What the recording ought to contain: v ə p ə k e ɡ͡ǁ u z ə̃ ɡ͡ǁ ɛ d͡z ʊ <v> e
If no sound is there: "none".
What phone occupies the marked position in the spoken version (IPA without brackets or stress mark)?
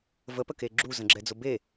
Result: b